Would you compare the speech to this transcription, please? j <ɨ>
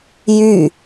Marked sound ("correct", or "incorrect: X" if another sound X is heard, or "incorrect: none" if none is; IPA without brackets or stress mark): incorrect: y